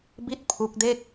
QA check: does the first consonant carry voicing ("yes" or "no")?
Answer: yes